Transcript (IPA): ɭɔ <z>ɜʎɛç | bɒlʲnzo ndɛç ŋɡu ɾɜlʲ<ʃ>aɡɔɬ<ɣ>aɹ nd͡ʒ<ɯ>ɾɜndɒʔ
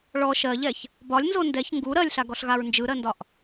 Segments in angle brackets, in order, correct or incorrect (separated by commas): incorrect, incorrect, correct, correct